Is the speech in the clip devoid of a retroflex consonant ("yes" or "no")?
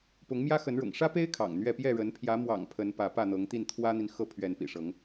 no